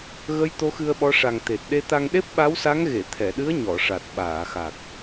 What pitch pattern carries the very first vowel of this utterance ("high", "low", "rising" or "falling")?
rising